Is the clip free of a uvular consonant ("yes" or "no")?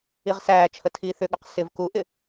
no